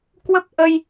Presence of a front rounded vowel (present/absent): absent